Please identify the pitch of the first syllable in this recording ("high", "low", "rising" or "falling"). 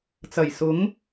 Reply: low